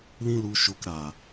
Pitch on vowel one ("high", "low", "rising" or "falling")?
high